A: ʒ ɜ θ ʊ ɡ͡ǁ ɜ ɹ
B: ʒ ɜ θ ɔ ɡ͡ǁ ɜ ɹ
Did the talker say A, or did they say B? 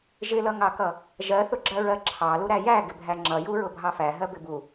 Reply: A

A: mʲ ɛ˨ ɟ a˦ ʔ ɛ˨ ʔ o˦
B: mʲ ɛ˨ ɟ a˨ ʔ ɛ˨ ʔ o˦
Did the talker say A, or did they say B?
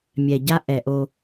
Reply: A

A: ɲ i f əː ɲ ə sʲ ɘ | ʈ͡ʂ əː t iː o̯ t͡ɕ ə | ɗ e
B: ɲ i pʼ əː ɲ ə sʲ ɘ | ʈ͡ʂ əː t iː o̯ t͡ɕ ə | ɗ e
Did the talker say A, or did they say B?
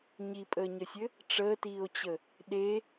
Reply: B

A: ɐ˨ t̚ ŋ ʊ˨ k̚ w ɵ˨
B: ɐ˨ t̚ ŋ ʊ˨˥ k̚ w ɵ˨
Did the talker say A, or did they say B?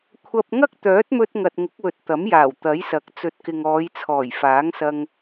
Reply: B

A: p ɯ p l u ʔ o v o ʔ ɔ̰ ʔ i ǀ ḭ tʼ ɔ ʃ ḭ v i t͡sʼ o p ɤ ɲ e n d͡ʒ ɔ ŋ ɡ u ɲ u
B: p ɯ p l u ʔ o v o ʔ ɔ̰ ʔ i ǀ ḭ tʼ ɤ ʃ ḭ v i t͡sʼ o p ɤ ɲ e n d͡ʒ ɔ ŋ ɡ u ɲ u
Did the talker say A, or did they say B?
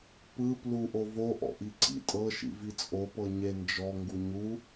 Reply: B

